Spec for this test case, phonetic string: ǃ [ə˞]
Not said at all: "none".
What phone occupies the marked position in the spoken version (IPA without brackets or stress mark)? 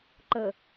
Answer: ə